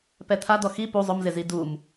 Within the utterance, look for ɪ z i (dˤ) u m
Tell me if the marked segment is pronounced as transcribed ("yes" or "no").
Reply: no